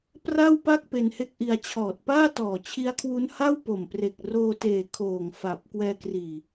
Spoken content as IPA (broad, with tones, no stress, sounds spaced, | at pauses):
p r a˥˩ w p a˥˩ k̚ p e˧ n h e˥˩ k̚ ʔ i˧ a̯ t͡ɕʰ ɔː˨˩ t̚ p aː˥˩ t ɔː˨˩ t͡ɕʰ i˦˥ a̯ kʰ w u˦˥ n h a˥˩ w p o˨˩ m p r e˨˩ k̚ r oː˧ t eː˨˩ kʰ oː˨˩ ŋ f a˨˩ p̚ k w ɛː˧ k r iː˨˩